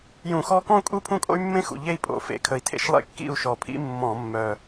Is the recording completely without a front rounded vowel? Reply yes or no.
no